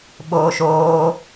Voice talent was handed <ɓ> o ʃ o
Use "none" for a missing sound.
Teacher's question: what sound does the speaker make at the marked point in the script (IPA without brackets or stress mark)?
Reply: ɓ